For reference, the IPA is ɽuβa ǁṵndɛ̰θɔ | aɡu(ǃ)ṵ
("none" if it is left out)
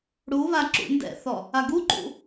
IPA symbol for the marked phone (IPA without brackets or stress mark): ǃ